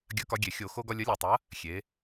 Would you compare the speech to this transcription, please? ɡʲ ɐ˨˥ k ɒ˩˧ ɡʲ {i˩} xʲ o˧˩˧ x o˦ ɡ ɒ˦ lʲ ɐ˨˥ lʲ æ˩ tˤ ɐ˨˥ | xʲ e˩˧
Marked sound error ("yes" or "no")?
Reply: yes